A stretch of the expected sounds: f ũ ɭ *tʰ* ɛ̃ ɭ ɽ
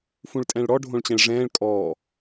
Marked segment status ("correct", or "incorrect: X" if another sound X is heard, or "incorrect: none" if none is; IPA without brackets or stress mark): incorrect: tʼ